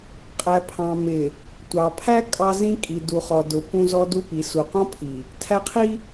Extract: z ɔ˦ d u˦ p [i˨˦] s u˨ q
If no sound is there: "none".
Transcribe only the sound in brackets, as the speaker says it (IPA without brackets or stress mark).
i˨˦